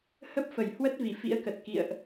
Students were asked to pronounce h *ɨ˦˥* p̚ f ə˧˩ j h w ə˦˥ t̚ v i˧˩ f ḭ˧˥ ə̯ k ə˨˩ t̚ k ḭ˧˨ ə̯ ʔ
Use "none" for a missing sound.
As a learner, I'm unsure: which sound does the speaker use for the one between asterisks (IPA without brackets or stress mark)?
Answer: ə˦˥